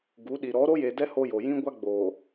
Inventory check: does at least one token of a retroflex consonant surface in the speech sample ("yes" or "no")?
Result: no